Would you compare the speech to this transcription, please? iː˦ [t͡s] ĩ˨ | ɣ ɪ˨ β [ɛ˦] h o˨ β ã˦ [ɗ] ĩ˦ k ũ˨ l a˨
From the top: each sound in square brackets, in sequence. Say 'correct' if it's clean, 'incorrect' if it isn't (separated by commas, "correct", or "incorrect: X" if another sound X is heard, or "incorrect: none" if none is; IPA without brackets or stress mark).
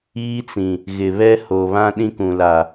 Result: correct, correct, correct